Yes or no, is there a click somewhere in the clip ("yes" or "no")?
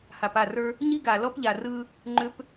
yes